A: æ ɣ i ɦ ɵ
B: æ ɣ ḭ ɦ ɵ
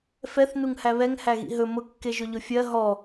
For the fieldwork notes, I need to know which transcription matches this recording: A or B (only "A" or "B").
B